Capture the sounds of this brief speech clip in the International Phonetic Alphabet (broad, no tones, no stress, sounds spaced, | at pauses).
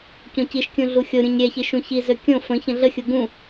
c õ c i ʃ kʲ ũ ɮ u xʲ o ɾʲ ũ ɲ ɾʲ ɛ ç i ʃ ũ ç i z ø kʲ õ f ə̃ ç ə̃ ɮ ə xʲ u ɡ ũ